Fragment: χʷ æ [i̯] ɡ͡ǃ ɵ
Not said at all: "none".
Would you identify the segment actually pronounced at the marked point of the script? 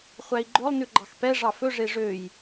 i̯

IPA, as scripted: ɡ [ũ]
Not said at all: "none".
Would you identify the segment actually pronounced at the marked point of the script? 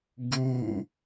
u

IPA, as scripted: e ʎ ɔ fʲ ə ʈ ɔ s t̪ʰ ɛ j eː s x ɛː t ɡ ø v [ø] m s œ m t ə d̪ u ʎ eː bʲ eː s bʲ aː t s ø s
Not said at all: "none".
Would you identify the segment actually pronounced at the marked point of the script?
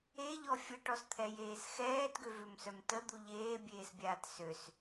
ø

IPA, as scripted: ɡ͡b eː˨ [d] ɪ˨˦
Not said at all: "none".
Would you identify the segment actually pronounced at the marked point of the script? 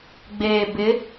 b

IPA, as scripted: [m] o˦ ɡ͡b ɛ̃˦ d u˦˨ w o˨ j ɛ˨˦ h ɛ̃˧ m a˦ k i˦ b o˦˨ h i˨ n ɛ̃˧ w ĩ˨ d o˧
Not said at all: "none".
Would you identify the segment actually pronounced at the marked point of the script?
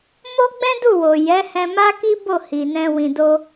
m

